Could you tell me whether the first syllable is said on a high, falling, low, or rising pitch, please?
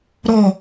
low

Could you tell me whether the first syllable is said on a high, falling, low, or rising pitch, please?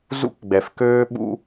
high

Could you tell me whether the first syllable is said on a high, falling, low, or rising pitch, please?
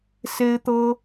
high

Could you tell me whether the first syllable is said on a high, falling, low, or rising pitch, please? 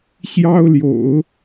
high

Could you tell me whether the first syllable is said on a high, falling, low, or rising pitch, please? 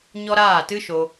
high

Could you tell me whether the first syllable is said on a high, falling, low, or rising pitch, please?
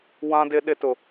high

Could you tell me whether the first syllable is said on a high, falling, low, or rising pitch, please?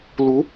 rising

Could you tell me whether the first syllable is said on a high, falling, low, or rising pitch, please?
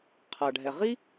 low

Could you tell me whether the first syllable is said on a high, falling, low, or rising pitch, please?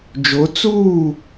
rising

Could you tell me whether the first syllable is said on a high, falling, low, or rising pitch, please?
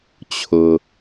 low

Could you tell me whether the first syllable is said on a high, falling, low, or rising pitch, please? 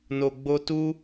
low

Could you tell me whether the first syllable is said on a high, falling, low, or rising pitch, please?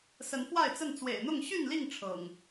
rising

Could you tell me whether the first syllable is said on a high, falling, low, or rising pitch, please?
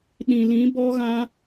low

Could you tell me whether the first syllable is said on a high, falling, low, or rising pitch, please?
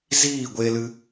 falling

